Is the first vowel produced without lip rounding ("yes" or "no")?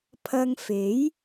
yes